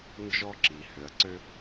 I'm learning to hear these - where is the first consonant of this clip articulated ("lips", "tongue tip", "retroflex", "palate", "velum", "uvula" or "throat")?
tongue tip